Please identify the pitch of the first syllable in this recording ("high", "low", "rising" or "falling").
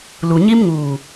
low